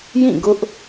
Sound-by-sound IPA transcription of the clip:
jĩ˦˨ɡʊ˦ʔ

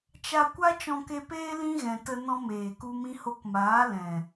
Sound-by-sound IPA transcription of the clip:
t͡ʃa˧ kʷa˦t͡ʃɔ̃˧ke˧peː˦ lĩ˦ɣɛ̃˨tə˧ nɔ̃˦meː˨ku˦ mĩ˧ho˧kmaː˨˦ lɛ̃˨

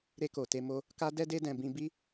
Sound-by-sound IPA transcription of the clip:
ɾe˧ko˨te˧mo˧ | ka˦dɛ˦de˦dɛ̃˧ bĩ˧bi˦

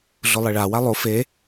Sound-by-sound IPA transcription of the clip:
ɮʊlˠiɭa walˠo fe

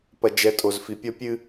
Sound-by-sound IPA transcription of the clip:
pɐ˨d͡ʒɛ˨ tʼo˨zfi˨pʲɔ˦ pʲɨ˦

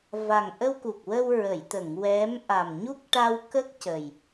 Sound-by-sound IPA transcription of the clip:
va˨˩ŋʔə˧wku˨˩k̚wə˧w ɹə˨˩˨jt̪ə˨˩˨ŋ wɛ˧˥m ʔa˨˩mɲu˦˥k̚ʈa˧wkə˦˥k̚ cə˨˩j

